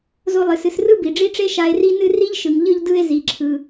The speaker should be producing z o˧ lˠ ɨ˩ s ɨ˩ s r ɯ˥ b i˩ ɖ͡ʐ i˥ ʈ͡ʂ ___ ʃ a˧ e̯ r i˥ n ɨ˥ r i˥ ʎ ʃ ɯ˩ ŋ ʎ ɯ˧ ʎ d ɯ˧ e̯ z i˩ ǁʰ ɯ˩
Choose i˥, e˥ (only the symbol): e˥